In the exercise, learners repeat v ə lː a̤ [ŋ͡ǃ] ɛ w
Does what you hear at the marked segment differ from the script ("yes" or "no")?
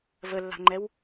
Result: no